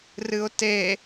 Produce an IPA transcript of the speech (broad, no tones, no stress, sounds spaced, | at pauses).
r ɨ ʊ̯ t e